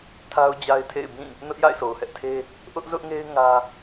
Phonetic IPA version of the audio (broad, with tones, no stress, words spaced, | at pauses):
tʰa˦ʊ̯d͡ʑa˦ɪ̯tʰḛ˦˨ɪ̯bĩ˦˨ | nʊ˦ʔja̰˦˨ɪ̯so˨ʊ̯ hɛ˦ʔtʰe˦ | ʔʊ˦ʔzʊ˦ʔŋe˦ɪ̯ ŋä˦